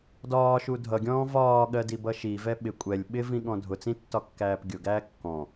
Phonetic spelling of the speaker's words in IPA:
dɒːʃu dʱʌɡʲɔ̃ː vɒːɠɜdibʌ ʃivɛ ɓɪ kʷʼɛlʲ ɓɪvĩɠɔ̃ dʱʊt͡sĩtːɒkːæːp ɡʲʊɡæː kːɔ̃

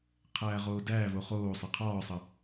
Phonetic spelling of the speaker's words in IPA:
qʰæːʁoːdæːvo χoː sˤeqʰɒːsˤə

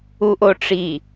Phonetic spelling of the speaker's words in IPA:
uʔoʈ͡ʂi

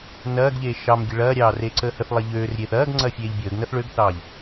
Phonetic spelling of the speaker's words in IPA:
nɐːɡʎeː ʃɑmɡʲə ɭɐːɾʲɑːr eǀəːhəθlˠɐ ʎøːrɾʲeːθ ɐːɡ ŋ͡ǀɐːfʲeːʎbʲəːɡnɐθ ɭøɡθɑːʎ

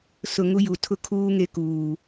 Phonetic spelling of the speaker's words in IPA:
sʊ˨ ŋu˦ju˨ tʰʊ˦kʰuː˦ ŋe˦kuː˨

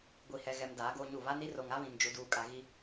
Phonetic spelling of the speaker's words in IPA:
ɡʷi˨hɛ˨ɣɛ˨m daː˨˦ɡoː˦ɲu˦˨ βa˦ni˦r o˨ŋa˦βĩ˨n d͡ʒu˦duː˦kʼa˦ ɣi˦

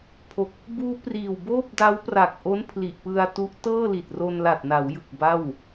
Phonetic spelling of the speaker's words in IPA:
pʰo˨˩k̚ | buː˦˥priː˨˩wboː˥˩p̚ da˦˥wpra˨˩k̚ʔo˦˥n pʰli˨˩ʔpɯ˧a̯tu˦˥ʔ tɤː˥˩li˨˩t̚ro˧n la˨˩t̚na˩˦wjɯ˨˩k̚ ba˥˩w

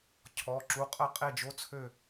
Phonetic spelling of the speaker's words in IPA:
cʰɔ˩˧˩ ǁu˩˧˩qʼə˥˨ qʼe˥˨d͡ʒo˧˥˧t͡sʰø˥˨

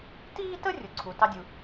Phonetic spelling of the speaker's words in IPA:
tiː˥tə˥ rʲʊ˩ǀʰu˩ tɑ˥dʲu˨

